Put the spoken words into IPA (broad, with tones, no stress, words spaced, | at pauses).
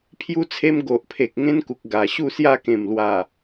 pʰju˦t͡sʰe˦m ɡo˨ʔpʰe˨k̚ ŋẽ˦nku˨k̚ ɡa˨˩ ɕu˥˧sja˥˧kẽ˨˩mlwa˨˩